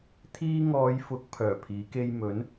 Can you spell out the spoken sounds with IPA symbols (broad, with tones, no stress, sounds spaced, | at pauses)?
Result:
t̪ʰ iː˧ ŋ ɔː˨˧ j f ʊ˨˥ k̚ pʰ œː˨˩ pʰ iː˨˥ k e˥ j m ɵ˨˥ n